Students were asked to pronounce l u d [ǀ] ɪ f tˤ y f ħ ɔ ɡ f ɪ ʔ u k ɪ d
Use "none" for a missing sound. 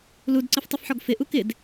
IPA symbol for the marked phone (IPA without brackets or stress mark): ǀ